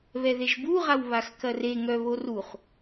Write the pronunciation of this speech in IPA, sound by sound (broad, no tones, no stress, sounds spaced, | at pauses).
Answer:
β ɛ ð e ʒ b u ʁ a w β a x k ɐ r e ŋ œ β o r u χ